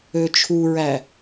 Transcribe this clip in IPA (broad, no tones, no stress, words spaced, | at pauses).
øt͡ʃʰuɹæ